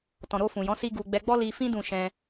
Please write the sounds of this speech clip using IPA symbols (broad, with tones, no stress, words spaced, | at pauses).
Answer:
tɔ̃˨ɾo˧fũ˨jɔ̃˨˦ si˦ɡu˧ ɡ͡bɛ˧ɡ͡bɔ˦li˧fĩ˦ dũ˦˨ʃɛ̃˧